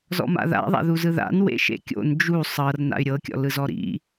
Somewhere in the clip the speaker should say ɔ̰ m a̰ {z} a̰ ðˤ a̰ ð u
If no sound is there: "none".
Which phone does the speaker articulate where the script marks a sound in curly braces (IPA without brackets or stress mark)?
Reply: ð